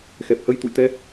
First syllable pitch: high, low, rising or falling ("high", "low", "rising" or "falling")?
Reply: low